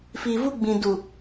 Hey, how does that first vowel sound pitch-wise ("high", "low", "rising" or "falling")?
low